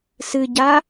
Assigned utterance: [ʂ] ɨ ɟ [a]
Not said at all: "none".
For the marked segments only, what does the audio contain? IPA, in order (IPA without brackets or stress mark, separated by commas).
s, a